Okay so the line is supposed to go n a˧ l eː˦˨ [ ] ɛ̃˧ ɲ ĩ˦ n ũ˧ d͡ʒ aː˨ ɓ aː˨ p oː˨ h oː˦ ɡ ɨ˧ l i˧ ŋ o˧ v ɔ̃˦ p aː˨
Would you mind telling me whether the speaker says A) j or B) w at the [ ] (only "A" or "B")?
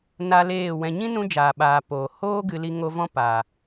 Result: B